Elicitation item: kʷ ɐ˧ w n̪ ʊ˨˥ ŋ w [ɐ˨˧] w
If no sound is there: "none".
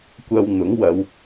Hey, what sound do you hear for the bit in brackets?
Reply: ɐ˨˧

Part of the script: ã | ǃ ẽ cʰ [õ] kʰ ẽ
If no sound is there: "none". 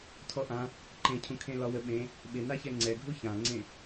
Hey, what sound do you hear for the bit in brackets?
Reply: ũ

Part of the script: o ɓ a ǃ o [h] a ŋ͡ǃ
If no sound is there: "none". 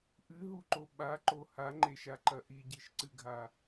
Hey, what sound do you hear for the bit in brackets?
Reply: h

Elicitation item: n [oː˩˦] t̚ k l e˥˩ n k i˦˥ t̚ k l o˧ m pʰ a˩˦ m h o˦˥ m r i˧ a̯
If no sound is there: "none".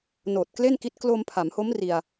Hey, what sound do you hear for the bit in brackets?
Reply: oː˨˩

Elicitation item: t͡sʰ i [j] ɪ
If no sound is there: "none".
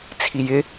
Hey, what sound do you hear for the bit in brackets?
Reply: j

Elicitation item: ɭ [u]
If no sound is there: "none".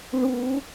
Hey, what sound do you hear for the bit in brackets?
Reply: u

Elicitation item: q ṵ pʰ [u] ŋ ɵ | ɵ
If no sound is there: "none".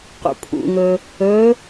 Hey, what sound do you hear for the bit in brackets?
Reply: ṵ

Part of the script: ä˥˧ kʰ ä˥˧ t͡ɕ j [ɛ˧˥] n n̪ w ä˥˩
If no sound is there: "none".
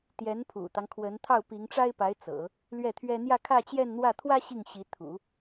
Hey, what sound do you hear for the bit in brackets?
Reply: ɛ˥˧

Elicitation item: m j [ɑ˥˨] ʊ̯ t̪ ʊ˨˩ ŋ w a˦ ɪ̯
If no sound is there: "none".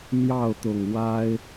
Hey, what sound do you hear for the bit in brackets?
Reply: ɑ˥˨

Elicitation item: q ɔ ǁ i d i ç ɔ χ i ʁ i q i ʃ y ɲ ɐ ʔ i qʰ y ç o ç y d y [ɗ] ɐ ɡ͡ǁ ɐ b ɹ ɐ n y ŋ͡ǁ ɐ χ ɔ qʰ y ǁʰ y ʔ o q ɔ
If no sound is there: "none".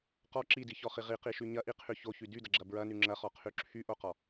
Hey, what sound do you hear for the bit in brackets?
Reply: d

